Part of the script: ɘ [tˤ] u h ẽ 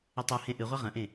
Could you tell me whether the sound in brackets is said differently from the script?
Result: no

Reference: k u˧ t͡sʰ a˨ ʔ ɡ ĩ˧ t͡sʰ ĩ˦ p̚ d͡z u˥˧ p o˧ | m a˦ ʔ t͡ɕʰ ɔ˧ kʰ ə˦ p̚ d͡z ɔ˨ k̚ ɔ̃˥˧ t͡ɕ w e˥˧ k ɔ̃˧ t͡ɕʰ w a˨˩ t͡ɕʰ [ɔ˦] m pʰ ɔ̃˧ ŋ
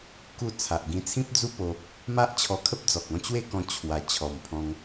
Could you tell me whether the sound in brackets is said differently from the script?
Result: yes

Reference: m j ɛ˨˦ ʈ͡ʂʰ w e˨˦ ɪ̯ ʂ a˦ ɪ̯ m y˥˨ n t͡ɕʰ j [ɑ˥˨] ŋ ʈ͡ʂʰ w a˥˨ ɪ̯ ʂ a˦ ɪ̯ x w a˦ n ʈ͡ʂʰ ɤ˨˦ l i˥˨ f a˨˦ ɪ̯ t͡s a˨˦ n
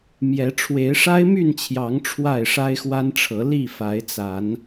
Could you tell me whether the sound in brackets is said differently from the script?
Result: yes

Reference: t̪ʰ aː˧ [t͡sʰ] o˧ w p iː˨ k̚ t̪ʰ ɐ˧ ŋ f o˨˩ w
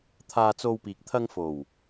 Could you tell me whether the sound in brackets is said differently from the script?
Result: yes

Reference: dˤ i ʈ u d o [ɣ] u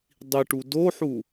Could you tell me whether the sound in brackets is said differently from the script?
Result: yes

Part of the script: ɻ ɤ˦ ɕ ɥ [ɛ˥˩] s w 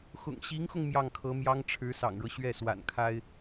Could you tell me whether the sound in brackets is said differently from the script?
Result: no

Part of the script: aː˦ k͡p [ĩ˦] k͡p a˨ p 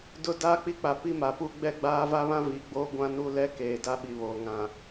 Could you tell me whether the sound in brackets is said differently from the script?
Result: yes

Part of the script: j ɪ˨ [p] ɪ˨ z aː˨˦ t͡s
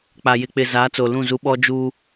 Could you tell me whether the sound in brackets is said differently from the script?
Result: yes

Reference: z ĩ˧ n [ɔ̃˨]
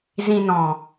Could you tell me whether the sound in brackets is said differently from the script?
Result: no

